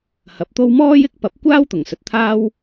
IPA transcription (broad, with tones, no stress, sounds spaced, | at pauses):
h ɐ˨˥ p̚ t̪ o˥ w m ɔː˥ j ɪ˥ k̚ p ɐ˨˥ p̚ kʷ aː˥ w t̪ ʊ˨˩ ŋ s ɵ˨ t̚ t̪ʰ aː˥ w